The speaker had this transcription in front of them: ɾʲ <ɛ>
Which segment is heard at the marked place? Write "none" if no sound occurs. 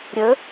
ə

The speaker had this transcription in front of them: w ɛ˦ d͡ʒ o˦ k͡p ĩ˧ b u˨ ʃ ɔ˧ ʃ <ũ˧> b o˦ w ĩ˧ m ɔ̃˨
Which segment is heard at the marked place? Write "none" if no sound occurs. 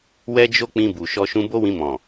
ũ˧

